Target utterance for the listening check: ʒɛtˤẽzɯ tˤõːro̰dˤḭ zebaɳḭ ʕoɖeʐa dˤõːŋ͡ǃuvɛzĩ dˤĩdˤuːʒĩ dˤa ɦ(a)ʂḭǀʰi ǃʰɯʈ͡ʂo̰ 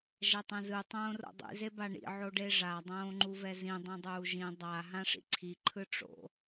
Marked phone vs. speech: incorrect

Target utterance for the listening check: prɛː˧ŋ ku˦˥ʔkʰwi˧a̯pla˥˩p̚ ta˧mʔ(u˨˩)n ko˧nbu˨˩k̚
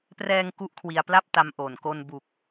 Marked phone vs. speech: incorrect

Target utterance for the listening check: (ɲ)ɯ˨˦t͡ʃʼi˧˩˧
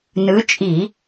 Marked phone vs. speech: incorrect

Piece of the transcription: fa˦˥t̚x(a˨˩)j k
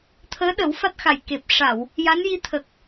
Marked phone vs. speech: correct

